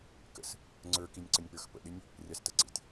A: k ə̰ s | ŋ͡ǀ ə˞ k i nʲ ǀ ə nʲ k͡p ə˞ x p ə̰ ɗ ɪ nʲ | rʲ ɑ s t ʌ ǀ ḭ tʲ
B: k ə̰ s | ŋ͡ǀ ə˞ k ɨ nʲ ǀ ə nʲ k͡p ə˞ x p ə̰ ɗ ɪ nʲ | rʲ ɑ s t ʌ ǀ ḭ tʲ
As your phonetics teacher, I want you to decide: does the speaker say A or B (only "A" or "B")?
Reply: A